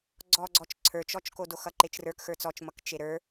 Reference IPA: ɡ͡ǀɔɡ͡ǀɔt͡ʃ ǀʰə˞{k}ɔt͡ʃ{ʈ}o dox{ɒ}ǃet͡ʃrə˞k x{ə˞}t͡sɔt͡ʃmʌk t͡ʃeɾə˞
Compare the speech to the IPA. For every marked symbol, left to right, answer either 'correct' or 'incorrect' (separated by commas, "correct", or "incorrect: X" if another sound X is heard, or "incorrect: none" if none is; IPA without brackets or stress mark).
incorrect: t͡ʃ, incorrect: k, incorrect: ʌ, correct